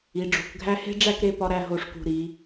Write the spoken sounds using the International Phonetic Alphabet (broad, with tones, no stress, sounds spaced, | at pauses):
i˩˧ ɖ͡ʐ o̤˩˧ k ɡʱ æ˥ h e̤˥ ɖ͡ʐ æ˥˧ k ɾ e˥˧ p ɒ˧ ɾ æ˥˧ ɦ o˧˩ ʂ k ṳ˧˩ ɾ i˩˧